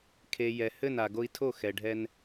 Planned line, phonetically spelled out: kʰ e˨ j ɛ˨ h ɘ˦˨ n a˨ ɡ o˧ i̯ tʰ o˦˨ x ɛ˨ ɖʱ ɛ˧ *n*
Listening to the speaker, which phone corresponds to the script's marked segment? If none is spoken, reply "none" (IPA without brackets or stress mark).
n